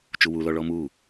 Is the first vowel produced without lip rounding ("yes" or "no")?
no